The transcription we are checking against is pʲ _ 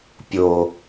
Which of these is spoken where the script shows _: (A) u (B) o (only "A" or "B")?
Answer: B